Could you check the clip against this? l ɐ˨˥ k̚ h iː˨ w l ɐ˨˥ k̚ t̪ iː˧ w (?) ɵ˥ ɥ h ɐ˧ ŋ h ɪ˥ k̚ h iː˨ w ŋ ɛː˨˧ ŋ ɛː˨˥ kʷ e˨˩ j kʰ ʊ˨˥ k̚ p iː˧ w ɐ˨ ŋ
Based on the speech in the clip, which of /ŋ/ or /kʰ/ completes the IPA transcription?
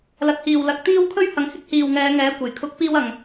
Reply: kʰ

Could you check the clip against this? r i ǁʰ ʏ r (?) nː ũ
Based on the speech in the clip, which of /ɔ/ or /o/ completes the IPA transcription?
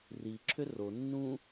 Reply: o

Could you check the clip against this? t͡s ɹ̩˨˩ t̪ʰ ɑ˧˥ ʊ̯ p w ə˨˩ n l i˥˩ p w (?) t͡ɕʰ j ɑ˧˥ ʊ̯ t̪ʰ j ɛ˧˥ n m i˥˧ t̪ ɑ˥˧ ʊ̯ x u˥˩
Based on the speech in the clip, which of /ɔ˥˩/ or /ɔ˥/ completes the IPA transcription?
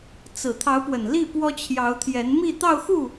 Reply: ɔ˥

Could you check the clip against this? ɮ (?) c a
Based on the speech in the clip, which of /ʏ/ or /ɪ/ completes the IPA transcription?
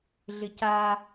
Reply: ɪ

